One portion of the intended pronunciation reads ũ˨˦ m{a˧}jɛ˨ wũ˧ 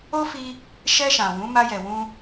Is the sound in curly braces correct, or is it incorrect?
correct